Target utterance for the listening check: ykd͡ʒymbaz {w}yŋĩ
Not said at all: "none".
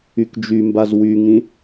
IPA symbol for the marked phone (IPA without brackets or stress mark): w